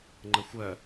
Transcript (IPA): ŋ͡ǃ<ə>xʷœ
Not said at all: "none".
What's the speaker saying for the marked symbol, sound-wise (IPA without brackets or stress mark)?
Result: ə